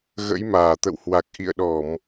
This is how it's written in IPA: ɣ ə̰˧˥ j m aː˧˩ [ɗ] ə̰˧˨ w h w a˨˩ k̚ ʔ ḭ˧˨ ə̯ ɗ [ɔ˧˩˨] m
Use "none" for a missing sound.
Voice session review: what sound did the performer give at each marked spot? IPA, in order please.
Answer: t̪, ɔ˧˩˨

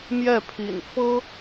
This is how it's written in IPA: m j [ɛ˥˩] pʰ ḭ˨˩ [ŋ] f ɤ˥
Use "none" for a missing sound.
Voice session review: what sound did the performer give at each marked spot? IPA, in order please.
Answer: ɛ˥˩, n

